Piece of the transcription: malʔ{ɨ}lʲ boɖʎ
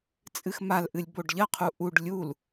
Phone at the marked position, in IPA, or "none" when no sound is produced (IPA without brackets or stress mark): ɨ